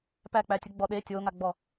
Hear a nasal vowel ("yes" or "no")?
no